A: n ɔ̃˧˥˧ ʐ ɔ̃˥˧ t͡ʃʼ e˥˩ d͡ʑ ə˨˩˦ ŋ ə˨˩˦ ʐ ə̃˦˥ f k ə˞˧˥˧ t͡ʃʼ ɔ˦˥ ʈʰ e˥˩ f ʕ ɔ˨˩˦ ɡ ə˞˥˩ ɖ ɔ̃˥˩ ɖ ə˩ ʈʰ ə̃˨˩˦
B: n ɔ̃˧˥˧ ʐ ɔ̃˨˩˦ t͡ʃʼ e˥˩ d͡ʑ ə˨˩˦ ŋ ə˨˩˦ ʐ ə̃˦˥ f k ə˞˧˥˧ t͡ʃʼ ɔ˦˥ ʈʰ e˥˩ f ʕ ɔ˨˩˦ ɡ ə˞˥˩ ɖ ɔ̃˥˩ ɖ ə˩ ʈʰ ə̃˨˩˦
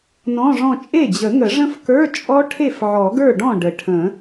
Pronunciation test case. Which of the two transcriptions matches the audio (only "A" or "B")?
A